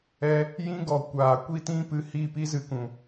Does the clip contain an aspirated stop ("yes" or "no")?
no